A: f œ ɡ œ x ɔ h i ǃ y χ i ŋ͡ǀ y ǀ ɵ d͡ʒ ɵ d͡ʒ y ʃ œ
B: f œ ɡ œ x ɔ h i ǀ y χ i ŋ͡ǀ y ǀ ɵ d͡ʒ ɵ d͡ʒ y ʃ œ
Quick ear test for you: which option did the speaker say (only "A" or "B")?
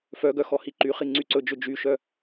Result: A